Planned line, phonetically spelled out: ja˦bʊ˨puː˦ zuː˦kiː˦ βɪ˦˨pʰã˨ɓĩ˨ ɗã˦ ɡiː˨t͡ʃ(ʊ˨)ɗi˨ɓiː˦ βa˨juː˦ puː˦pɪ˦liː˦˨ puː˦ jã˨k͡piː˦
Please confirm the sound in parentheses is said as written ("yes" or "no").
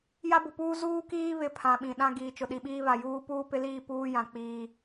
yes